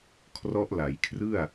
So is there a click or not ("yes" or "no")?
no